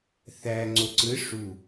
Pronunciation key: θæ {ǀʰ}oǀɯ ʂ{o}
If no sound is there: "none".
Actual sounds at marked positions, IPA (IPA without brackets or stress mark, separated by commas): ŋ͡ǀ, u